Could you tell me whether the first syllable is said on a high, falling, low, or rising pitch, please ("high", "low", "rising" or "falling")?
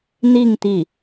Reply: falling